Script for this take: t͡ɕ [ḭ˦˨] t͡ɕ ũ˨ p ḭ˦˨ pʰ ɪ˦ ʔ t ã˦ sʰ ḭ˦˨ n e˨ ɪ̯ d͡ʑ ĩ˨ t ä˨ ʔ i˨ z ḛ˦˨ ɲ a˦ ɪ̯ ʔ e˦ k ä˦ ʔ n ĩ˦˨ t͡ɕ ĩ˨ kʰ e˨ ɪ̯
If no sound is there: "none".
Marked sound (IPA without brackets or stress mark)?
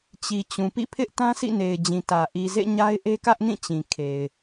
i˨